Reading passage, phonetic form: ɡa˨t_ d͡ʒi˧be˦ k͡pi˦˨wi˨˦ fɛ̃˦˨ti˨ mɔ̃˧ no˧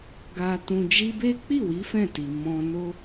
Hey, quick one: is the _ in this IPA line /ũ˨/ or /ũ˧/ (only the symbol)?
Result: ũ˨